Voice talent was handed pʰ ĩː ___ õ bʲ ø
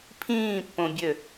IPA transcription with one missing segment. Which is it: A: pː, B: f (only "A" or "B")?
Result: A